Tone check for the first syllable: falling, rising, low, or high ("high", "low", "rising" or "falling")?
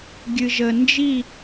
low